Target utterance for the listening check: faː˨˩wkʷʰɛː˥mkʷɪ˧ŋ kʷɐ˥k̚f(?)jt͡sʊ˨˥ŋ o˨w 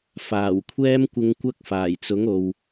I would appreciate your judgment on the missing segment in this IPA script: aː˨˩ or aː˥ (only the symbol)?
aː˨˩